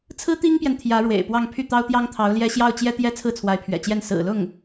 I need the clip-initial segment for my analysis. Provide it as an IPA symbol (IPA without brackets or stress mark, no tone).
t͡sʰ